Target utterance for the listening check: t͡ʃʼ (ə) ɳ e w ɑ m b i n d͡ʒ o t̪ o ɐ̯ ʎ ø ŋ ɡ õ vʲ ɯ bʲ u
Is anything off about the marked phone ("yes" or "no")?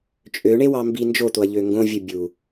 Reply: yes